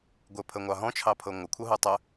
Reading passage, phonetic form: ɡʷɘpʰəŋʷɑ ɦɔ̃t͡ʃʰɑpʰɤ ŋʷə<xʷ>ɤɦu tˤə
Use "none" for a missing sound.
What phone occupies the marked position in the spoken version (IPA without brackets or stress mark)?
kʷʰ